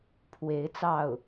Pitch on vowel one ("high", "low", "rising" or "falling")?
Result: rising